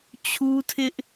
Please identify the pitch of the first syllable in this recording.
high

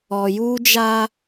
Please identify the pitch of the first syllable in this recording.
low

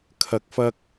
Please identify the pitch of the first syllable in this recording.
low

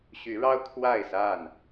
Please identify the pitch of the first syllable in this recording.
rising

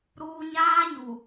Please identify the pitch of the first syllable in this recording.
low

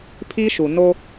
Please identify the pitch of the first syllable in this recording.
high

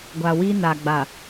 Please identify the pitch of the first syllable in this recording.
low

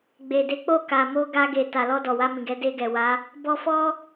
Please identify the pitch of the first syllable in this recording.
low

